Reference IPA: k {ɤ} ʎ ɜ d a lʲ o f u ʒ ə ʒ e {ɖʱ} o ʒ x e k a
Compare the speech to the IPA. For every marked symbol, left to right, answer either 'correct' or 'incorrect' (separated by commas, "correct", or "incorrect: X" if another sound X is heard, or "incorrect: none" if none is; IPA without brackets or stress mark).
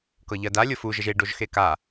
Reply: correct, incorrect: ɖ